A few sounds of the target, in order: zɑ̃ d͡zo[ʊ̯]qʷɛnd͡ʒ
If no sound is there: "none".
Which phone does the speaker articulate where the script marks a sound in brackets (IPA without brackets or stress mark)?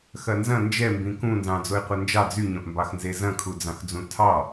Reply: ɪ̯